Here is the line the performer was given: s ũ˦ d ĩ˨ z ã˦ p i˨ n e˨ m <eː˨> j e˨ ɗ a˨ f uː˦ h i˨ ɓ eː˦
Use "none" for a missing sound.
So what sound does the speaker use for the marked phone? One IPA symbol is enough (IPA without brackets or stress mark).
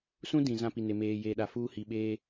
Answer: eː˨